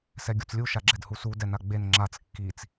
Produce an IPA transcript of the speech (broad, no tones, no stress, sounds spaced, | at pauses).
s ɛ ɡʲ u t͡s lʲ u ʃ a ɡ͡ǁ ɛ d h u s u d ɛ n a ɡ͡b e n ŋ͡ǁ a t͡s kː i t͡s